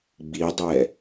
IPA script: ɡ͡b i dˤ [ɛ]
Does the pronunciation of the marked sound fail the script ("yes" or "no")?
no